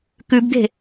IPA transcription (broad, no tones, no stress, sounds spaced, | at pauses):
k ʉ b d̪ e̤